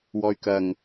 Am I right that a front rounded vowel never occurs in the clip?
no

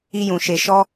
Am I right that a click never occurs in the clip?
yes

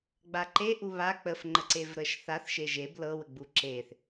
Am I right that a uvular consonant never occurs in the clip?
yes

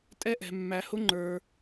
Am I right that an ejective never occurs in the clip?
no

